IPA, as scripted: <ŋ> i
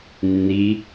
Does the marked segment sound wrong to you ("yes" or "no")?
yes